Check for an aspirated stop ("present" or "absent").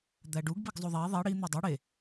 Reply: absent